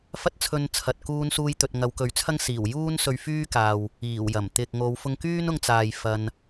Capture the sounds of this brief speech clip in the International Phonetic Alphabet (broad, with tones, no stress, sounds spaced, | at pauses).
f ɐ˥ t̚ t͡sʰ ɵ˧ n t͡sʰ ɐ˨ t̚ k uː˧ n s uː˧ j t̪ ɵ˨ t̚ ŋ ɐ˨˧ w k ɵ˨˥ ɥ t͡sʰ ɐ˥ ŋ s iː˨˩ w j uː˥ n s ɵ˧ ɥ f yː˥ k aː˨ w | iː˨˩ w j ɐ˨˩ m t̪ ɪ˨ k̚ ŋ o˨˧ w f ʊ˧ ŋ k yː˥ n ʊ˧ ŋ t͡s aː˨ j f ɐ˧ n